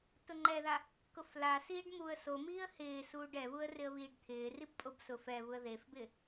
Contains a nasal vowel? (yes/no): no